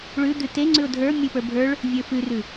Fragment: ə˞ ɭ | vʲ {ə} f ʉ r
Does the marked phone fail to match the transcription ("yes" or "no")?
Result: yes